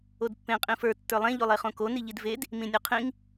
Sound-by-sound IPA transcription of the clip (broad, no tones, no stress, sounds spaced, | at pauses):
o d pː ẽ qʼ ĩ f ə˞ tː ə˞ lˠ ẽ ʎ o lˠ e χ õ k o n i ʎ i d v e d | m ĩ nʲ o qʰ ĩ ŋ